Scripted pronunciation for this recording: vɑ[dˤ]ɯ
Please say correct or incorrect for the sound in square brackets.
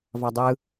correct